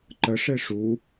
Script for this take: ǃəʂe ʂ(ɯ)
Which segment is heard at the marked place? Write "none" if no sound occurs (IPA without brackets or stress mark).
u